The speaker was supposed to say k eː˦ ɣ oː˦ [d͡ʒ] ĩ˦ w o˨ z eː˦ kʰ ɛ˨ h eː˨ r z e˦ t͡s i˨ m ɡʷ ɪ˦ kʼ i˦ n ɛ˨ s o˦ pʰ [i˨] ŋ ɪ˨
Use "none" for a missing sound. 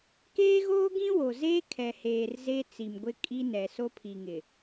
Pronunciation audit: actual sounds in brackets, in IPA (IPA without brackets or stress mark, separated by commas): ɡ, i˨